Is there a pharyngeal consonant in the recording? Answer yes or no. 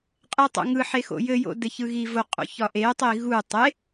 yes